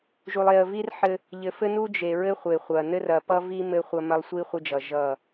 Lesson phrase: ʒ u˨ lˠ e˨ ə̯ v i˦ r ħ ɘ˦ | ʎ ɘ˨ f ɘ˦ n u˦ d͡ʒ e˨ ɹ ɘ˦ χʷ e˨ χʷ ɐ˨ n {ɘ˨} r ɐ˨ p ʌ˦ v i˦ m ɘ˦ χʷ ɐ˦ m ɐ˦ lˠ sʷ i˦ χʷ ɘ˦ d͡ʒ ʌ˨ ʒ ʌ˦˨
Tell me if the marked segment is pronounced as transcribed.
no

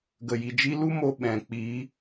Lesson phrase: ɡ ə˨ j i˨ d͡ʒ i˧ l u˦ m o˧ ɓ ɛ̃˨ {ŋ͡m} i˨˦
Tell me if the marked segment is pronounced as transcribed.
no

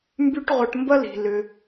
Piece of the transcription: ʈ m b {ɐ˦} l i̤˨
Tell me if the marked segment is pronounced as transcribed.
yes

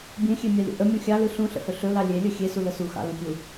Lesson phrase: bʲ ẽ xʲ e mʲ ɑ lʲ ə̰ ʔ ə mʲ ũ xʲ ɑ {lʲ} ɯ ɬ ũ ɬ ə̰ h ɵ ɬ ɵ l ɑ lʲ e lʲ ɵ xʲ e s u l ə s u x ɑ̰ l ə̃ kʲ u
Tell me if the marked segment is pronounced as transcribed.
no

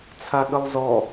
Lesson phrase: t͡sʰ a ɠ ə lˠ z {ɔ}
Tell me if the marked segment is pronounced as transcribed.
yes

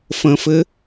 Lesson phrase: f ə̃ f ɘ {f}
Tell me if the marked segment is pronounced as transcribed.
no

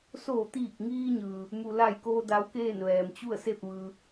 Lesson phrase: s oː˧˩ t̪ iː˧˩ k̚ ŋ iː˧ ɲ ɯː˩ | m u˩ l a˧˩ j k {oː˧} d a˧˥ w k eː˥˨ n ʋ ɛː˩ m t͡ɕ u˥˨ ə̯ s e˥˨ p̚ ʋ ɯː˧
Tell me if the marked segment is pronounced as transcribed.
yes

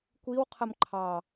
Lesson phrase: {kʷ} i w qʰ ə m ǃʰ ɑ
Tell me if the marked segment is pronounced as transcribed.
yes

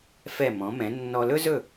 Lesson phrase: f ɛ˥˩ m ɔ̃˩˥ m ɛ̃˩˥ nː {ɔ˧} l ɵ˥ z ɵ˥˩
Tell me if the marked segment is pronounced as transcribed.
yes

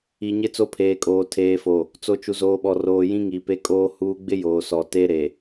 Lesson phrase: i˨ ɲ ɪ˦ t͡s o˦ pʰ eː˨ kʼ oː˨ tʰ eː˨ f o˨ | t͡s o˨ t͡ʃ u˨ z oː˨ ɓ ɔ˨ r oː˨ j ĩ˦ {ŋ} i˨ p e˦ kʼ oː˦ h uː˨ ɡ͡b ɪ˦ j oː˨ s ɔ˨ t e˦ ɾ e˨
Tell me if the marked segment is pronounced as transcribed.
yes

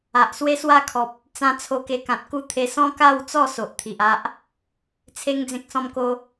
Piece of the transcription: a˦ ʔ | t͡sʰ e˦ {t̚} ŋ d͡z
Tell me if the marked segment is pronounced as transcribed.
no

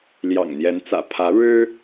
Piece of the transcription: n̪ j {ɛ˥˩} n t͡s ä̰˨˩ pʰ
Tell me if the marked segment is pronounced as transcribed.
no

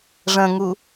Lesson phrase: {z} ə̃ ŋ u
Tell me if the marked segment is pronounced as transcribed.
no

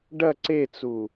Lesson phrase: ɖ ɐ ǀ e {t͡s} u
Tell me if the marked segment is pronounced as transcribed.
yes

